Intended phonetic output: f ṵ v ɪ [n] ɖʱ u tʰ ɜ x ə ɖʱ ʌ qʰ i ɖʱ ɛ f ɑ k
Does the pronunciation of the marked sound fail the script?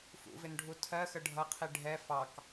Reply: no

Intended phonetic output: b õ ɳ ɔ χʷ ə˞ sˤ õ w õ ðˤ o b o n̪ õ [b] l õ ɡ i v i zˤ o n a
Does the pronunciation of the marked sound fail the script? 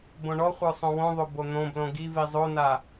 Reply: no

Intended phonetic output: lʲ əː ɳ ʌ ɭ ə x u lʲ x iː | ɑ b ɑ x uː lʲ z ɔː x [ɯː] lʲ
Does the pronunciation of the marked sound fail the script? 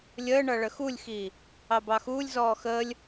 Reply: yes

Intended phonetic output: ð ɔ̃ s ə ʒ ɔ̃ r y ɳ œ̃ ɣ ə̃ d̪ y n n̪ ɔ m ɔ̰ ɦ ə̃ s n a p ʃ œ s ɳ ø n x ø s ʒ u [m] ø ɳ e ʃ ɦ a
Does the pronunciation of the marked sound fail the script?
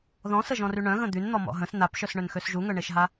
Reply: yes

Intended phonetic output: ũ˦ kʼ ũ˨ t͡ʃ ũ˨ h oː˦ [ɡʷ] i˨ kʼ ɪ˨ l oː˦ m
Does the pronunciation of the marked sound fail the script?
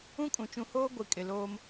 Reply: no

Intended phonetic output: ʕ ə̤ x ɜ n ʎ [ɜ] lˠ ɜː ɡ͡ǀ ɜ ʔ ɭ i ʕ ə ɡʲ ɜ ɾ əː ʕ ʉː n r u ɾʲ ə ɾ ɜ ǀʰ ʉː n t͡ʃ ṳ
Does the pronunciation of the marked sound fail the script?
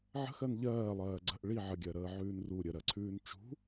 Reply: yes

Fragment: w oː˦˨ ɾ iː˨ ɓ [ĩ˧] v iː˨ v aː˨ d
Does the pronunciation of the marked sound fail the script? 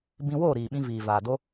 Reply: no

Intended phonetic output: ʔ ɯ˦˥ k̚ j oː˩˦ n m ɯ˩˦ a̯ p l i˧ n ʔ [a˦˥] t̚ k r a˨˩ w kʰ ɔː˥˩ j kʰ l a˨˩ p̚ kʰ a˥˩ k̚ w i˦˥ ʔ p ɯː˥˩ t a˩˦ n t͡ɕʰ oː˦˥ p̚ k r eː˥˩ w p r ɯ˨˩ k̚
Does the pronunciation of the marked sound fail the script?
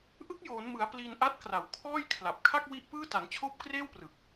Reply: no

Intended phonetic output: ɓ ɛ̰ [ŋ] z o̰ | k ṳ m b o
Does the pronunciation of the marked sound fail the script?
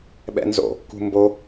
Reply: yes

